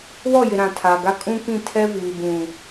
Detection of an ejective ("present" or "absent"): present